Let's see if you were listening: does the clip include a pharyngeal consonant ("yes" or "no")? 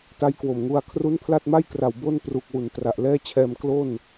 no